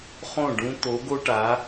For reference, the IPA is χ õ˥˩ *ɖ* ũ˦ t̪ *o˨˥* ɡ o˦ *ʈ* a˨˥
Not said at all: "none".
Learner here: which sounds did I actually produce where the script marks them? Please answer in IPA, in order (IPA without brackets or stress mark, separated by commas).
ɖ, o˨˥, ʈ